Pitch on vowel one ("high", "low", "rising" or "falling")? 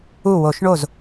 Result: falling